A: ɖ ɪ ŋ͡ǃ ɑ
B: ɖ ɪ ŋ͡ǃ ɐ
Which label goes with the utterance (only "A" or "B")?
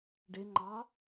A